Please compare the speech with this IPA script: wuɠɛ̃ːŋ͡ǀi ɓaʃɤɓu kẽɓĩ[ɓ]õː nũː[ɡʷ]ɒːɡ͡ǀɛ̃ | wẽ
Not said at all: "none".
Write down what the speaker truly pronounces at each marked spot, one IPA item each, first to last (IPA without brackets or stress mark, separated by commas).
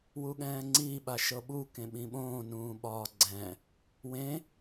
ɓ, ɓ